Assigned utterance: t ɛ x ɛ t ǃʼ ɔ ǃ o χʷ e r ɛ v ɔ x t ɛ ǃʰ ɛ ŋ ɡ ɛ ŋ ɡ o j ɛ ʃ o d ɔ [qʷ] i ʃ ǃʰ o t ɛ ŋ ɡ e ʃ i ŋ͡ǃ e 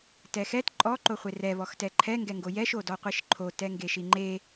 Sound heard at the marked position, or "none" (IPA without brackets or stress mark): qʷ